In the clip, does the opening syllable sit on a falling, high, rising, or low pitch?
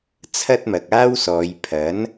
high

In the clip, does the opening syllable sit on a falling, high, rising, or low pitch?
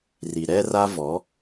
low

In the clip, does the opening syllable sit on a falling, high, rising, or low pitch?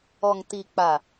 low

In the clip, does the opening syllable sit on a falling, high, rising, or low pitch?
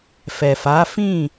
low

